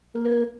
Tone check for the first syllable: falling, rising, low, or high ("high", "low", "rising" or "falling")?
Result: high